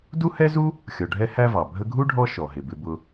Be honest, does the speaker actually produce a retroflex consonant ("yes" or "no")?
yes